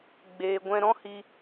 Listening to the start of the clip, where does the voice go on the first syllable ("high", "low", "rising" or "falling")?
low